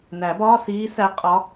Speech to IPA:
næ˨˩˦bɒː˧˥˧siː˧˥ sæ˧˥qʼɒ˧˥

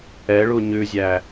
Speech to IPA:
ɛɭu ɲʉzʲæ

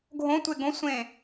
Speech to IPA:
ɡʱõtʷe ɡõsʷẽ

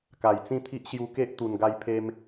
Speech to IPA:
ka˨˩jt͡sĩ˥˧t̪ʰi˦ʔ ɕju˧ke˦ʔ t̪u˨˩n ɡa˧j pʰe˧m

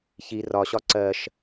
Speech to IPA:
çi rɒɕɒ ǀɜʃ

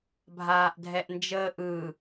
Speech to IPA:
bʱaːʔdʱɛʔnd͡ʒəːʔɯ

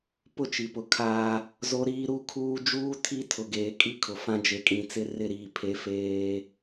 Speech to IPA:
pʊ˦t͡ʃi˨pʊ˨ kʰaː˦ | zo˦ɾiː˦ ɾu˦kʰuː˦ d͡ʒuː˦ tʰi˦tʰʊ˨ ɡeː˨kʼi˦kʰʊ˨fã˦ d͡ʒe˨kʼĩ˨t͡sɪ˦ rɪ˦˨ɾiː˨pʰe˨˦ feː˦

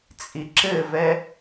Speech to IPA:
t͡sʼiǁɘvɛ

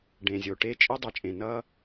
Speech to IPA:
ɖẽ˨˩zʲo˨˩ʈe˦ t͡ʃʼi˦dˤʌ˨˩t͡ʃʼẽ˨˩ nʌ˦

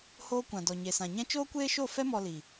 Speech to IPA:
hoː˦ kʷã˨dɔ˨ ɲe˨sã˨ɲɛ̃˦ t͡ʃoː˦kʷeː˦ʃo˦˨fɛ˦ mɔ˧li˨

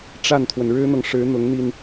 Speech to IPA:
ʈ͡ʂa˥˩nt̪ʰwə˩n ɻɻ̩˥n̪ɤ˨ŋ ʂɻ̩˧˥n̪ʊ˧˥ŋn̪i˧n

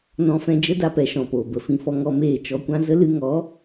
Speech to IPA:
nɔ̃˧fɛ̃˧d͡ʒə˦ da˦pɛ˨˦ʃɔ̃˨poː˨ bə˨fĩ˧fɔ˧ ŋɔ˧meː˦˨ t͡ʃɔ˧kʷã˦ zə˦lɨ˧ŋɔ˨˦

